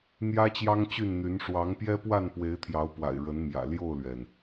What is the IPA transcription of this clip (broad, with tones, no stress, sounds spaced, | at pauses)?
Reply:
n̪ j ä˦ t͡ɕ j ɑ˦ ŋ t͡ɕ y˥˨ n n̪ y˨˦ n ʂ w ɑ˨˦ ŋ p j ɛ˦ p w a˥˨ n p w e˨˦ ɪ̯ t̪ʰ j ɑ˨˦ ʊ̯ p w a̰˨˩ ɪ̯ ɻ ə˨˦ n m j ä̰˨˩ l j o˥˨ ʊ̯ l ɥ ɛ˩ n